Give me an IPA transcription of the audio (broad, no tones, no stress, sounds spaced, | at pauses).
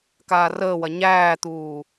k aː r əː w ɐ ɲ æː t̪ uː